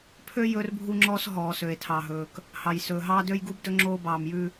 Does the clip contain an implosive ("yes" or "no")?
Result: no